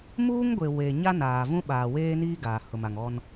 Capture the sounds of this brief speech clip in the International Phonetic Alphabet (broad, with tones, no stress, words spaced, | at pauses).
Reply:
muː˦ŋɡʷe˨ we˨ ɲa˦naː˨vũ˦ ɓaː˨weː˦niː˦ ɡaː˨hʊ˨ma˨ŋ ɔ˦n